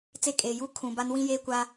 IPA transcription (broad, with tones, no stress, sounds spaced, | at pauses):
t͡s e˦ kʼ eː˨ j uː˦ kʰ ũ˨ b a˦ n w ĩ˦ j eː˦ kʷ a˦